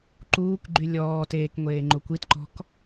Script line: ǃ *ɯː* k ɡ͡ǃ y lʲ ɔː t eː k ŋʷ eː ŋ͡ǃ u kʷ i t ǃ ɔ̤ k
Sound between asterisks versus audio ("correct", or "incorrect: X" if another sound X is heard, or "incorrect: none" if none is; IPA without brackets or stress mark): incorrect: uː